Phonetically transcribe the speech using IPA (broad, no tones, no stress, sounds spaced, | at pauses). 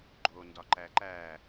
ɡ͡ǃ o n d ɒ ǃ æ ǃ æː